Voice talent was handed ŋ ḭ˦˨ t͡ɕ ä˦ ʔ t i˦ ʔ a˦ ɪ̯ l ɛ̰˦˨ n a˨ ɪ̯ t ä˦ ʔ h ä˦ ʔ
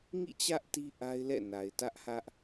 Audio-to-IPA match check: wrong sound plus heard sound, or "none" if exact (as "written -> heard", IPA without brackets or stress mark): none